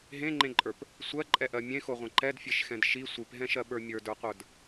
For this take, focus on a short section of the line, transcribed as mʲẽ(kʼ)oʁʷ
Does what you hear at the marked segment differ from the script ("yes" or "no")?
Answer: yes